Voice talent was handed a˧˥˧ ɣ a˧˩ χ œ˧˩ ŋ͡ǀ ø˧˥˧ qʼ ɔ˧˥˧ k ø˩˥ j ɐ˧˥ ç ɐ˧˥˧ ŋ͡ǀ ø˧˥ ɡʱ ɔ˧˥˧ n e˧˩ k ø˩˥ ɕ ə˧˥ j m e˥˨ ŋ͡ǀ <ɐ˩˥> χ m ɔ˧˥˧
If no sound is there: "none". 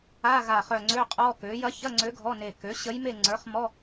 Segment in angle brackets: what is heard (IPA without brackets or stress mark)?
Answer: ə˞˩˥